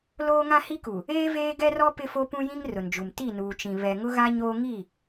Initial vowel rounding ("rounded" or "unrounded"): rounded